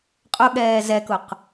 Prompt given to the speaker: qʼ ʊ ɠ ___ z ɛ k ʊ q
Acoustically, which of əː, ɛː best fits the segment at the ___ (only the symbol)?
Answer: ɛː